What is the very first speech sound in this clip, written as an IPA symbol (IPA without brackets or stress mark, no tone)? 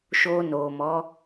ʃ